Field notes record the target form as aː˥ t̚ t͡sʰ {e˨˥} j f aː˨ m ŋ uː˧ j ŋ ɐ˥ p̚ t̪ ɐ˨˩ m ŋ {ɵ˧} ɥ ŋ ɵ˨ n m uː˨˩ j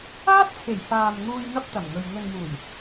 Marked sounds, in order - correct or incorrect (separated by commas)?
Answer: incorrect, incorrect